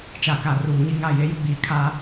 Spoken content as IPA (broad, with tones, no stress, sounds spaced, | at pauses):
t͡ʃ a˨ k a˨ r uː˨ ɲ i˦ ŋ a˦˨ j e˦ j ʊ˦ ɡ͡b iː˨ kʰ a˦